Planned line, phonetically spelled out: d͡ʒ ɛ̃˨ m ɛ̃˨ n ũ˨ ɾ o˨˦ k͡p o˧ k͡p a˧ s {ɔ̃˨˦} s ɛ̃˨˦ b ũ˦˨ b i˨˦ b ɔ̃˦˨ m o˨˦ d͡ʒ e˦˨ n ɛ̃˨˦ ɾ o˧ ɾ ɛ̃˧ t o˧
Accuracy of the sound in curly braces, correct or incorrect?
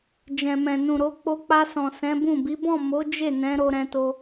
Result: incorrect